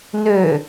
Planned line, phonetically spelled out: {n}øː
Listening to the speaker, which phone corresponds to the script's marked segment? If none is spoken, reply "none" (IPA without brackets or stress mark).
n